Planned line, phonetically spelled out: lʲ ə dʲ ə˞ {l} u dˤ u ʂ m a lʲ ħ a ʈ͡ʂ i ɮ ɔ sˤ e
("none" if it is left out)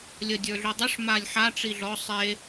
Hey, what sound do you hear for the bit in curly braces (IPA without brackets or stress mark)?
ɮ